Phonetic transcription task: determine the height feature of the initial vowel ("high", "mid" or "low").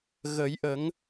mid